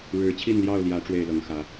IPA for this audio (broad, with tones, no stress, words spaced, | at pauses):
ɻɻ̩˨˦ t͡ɕʰi˥˨nljɑ˥˨ʊ̯ljä˨˦ ʈ͡ʂwe˥˨ɪ̯lɤ˨˦ŋxä˨˦